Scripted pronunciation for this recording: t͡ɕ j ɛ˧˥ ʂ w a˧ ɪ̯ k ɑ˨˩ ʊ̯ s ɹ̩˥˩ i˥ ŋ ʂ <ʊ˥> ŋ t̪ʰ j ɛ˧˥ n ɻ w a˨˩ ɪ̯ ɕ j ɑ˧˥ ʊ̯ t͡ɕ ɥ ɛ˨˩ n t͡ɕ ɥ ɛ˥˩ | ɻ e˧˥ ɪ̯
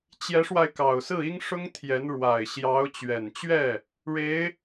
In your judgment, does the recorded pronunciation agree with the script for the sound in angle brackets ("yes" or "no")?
yes